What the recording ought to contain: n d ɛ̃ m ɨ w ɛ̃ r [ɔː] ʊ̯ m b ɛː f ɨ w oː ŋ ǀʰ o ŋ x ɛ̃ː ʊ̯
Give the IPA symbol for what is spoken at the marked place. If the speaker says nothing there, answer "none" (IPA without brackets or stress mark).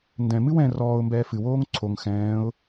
ɔː